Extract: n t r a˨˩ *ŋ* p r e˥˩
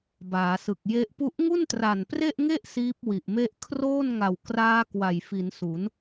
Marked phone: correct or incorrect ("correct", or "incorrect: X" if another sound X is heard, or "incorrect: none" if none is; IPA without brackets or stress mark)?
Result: incorrect: n